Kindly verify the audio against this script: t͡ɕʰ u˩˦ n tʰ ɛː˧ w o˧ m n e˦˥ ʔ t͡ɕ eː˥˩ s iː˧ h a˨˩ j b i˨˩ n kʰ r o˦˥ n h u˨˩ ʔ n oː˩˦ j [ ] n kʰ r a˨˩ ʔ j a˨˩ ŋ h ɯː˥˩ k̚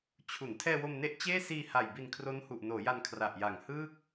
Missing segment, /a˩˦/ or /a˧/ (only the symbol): a˧